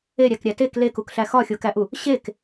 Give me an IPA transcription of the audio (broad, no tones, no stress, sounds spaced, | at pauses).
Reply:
e ɾʲ æ k ɾʲ æ t e k l e k u k ɬ æ x ɒ xʲ o k æ ʔ u | ɕ e k